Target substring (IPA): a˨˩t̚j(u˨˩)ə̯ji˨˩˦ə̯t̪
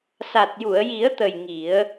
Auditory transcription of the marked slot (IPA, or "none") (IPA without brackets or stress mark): u˨˩˨